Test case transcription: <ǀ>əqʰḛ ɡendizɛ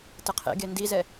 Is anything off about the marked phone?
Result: yes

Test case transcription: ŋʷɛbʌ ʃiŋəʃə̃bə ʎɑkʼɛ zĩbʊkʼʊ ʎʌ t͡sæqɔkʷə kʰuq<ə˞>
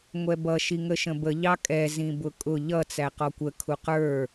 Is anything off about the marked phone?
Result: no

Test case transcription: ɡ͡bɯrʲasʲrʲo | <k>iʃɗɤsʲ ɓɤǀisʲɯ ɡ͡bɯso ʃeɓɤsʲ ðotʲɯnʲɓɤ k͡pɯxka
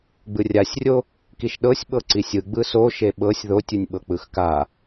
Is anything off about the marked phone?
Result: no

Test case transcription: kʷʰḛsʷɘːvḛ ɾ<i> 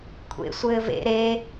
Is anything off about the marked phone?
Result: yes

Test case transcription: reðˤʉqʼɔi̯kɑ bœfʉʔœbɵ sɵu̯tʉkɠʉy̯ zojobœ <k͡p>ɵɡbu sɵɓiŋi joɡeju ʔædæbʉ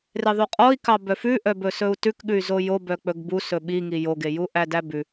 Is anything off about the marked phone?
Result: no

